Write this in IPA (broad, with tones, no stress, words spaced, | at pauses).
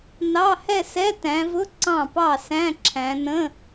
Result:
nɑ˧˥˧hɛ˥˧sɛ˧˥˧ tæ̃˨˦vʊ˧˥˧ ǀɑ̃˥˩pɑ˥˩sæ̃˧˥˧ǁʰæ̃˨˦ nə̃˧˥˧